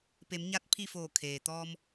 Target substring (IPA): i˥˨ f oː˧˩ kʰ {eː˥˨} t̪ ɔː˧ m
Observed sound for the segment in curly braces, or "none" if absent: eː˩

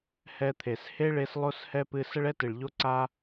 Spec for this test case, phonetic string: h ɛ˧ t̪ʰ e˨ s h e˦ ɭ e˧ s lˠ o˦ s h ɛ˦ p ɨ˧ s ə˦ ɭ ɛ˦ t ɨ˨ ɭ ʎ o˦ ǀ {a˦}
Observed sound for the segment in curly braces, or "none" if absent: a˦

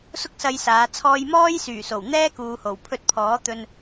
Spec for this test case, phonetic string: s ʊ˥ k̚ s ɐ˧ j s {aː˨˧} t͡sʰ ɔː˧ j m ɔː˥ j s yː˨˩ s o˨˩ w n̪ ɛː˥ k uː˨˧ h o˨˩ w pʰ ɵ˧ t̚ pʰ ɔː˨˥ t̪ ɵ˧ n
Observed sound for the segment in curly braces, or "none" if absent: aː˨˧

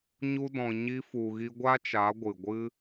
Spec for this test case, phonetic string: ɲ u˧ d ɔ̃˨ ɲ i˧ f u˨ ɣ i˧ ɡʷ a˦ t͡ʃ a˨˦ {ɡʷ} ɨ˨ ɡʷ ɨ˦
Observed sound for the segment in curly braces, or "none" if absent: ɡʷ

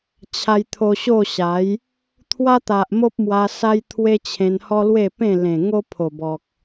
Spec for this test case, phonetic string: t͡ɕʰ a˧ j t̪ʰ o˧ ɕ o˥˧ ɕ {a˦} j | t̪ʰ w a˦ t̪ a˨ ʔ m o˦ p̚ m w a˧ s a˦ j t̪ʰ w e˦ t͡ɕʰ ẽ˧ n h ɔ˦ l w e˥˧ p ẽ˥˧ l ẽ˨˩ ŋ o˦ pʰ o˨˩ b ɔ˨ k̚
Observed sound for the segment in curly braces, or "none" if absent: a˨˦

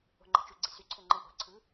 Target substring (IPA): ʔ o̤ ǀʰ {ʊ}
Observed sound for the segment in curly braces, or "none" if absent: ɯ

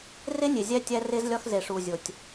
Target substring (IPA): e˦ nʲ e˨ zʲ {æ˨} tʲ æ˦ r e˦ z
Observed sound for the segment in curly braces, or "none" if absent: æ˦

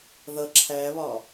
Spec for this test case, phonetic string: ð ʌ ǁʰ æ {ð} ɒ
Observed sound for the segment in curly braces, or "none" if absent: β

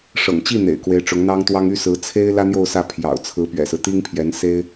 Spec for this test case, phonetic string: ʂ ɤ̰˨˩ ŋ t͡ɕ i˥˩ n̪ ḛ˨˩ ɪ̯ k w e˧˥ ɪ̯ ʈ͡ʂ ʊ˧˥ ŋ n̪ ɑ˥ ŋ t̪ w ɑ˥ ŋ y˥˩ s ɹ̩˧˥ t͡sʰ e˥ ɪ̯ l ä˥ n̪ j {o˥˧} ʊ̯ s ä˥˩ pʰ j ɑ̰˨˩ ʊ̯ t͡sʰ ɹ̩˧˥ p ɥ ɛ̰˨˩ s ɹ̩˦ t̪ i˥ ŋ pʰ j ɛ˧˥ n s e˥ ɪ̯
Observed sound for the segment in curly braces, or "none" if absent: o˥˧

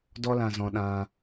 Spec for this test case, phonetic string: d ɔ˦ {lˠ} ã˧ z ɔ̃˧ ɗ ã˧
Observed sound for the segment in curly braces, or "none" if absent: l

